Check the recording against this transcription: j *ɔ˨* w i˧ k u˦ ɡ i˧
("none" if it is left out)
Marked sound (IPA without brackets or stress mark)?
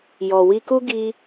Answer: ɔ˨